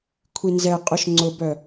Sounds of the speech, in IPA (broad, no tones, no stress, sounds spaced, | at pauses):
kʷʰ i n z ɛ qʼ ʊ ʃ ŋ͡ǀ ʊ b œ